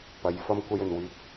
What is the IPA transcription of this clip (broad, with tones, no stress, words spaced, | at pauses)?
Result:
pɐ˨˥j fɐ˥mkʷɐ˥j ɵ˨nwyː˧t̚